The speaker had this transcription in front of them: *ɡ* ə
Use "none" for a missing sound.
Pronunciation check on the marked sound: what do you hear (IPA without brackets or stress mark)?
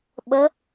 ɓ